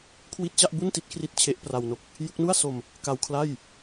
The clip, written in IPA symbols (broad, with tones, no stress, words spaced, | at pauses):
kʰwi˥˩t̚ t͡ɕa˥˩ʔbu˥˩nti˦˥t̚kʰri˦˥t̚ t͡ɕʰe˦˥ʔpra˧wno˦˥k̚ | ju˦˥k̚nu˥˩a̯so˧m | ka˧wkʰla˥˩j